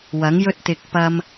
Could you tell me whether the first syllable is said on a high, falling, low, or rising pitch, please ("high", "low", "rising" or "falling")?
rising